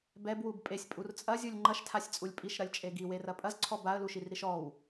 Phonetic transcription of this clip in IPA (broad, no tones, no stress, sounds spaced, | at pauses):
b ɛ b w u b pʼ e sʲ pʼ u r t͡sʼ ɐ zʲ u lʲ ŋ͡ǃ ɐ ʃ tʰ a sʲ t͡sʼ u lʲ pʼ i ʃ ɾ ɐ lʲ t͡ʃʼ e ɡ i w e r ɐ pʼ ɐ z ǀʰ ɔ b a ə̯ l u ʃ i r ɾ i ʃ ɔ w